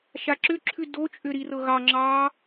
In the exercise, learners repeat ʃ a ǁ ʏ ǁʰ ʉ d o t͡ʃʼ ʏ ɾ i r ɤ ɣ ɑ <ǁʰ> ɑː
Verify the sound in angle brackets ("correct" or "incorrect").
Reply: incorrect